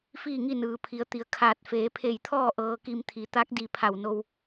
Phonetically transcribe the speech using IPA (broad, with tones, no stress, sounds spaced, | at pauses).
f iː˥˨ ŋ i˥˨ n ɯː˩ pʰ i˩˧ ə̯ t̪ i˩˧ ə̯ kʰ aː˧˩ t̚ f eː˩˧ pʰ e˧˩ j t̪ʰ ɔː˥˨ ʔ ɤː˧ k i˧ m t̪ʰ i˩˧ t̪ a˧˥ k̚ d i˧˩ pʰ a˧˩ w n o˧ w